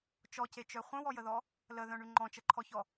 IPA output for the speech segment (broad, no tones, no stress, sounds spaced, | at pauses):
t͡ʃ ɔ c e t͡ʃ œ χʷ œ̃ w ɔ j ə ð ɔ | l ə ð œ̃ ɳ y ŋ͡ǃ ɔ̃ t͡ʃ ə ǃʰ ɔ ç ɔ